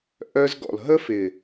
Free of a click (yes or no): yes